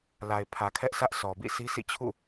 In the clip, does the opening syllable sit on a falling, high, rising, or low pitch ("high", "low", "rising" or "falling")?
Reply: low